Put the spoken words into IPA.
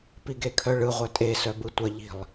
p i ɡ e kʰ œ ɭ ɯ ʁʷ œ tʼ e s œ b ɯ tʷ ə ʎ i̤ lˠ

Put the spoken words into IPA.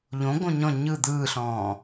ʎ õ ɡ õ ɲ ɔ̃ ɲ ɯ d̪ ɯː ɬ ɔ̃ː

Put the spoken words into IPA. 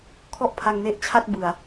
kʰ ɔ˥˩ ʔ pʰ a˧ ŋ n e˦˥ ʔ t͡ɕʰ a˥˩ t̚ b ɯ˨˩ a̯

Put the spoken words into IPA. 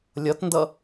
lʲ ʌ t n d ʌ

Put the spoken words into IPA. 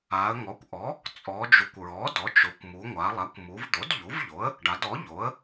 a˩˧ ə̯ ŋ ɔ˩˥ kʷ ʔ ɔ˩˥ | t͡sʼ ɔ˩˧ d͡ʒ u˩˥ kʷ ɹ ɔ˩˥ d ɔ˩˥ t͡ʃ o˩˧ kʷ m u˩˧ ŋʷ a˩˧ lˠ a˩˥ kʷ m u˩˧ v d̪ o˩˥ d ʎ u˩˥ v ʎ o˩˥ ə̯ | ɖ a˩˧ d ɔ˩˥ ʎ o˩˥ ə̯

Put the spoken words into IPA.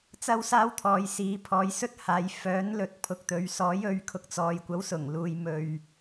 t͡s ɐ˥ w s aː˥ w t̪ʰ ɔː˨ j s iː˨˧ pʰ ɔː˨˧ j s ɵ˥ t̚ h aː˨˧ j f œː˨˥ n l ɵ˨ t̚ pʰ ʊ˨ k̚ t̪ ɵ˨˧ ɥ s ɔː˨˥ j ɵ˨˥ ɥ kʰ ʊ˨ k̚ t͡s ɔː˨ j kʷ ɐ˨˥ w s ʊ˨˩ ŋ l uː˨ j m ɵ˨ ɥ

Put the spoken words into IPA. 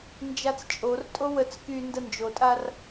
n d͡ʒ a t͡s t͡ʃʼ o r tʼ o w ə t͡s k y n d ə n d͡ʒ o tʼ a r

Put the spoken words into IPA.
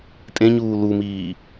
tʼ ẽ ɲ uː l u m iː

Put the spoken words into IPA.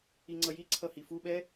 i ŋ͡ǀ ʌ j i ǀʰ ʌ h i f u ɓ ɛ

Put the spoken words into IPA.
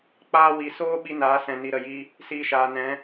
k͡p aː˧ w i˨ s oː˦ ɓ i˦ n aː˨˦ s ɛ̃˨ n i˧ ɾ ə˨ j i˦ | s iː˧ ʃ aː˨ n ɛ̃˨˦

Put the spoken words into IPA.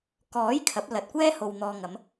k ɔː˨˥ j kʰ ɐ˨˥ p̚ l ɐ˨ t̚ kʷ ɛː˥ h o˨ w n̪ ɔː˨ ŋ ɐ˨˧ m

